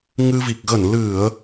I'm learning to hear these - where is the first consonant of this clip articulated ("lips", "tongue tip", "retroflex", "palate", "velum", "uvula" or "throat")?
velum